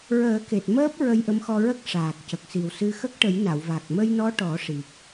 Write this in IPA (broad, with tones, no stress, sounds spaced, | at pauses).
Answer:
ɹ əː˨˩˦ k e˨˩ t̚ m əː˦˥ p̚ ɹ ə˧ j ʔ ə˧˥ m x ɔ˧ ɹ ə˦˥ k̚ ʂ aː˨˩ k̚ c ə˨˩ k̚ s i˨˩ w s ɨ˧ x ə˦˥ k̚ ʈ ə˨˩˦ j n a˨˩˨ w v a˨˩ k̚ m ə˧ j n ɔ˧˥ ʈ ɔ˨˩˦ ʂ i˨˩ k̚